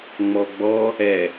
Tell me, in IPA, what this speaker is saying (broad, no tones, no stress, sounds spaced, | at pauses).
ŋ͡m ɔ ɡ͡b ɔ | ɛ